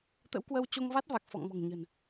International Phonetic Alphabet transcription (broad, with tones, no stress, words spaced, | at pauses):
t̪ə̰˧˥wkwə˧w t͡ɕo˧ŋva˦˥t̚va˨˩k̚ fɔ̰˧˨ŋmɔ̤˨˩ŋɲə̤˨˩n